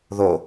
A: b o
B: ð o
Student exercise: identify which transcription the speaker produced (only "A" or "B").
B